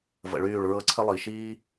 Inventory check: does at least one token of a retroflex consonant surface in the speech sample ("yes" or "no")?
yes